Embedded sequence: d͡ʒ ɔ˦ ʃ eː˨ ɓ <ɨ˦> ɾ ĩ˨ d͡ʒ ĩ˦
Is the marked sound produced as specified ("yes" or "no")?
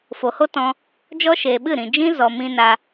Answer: no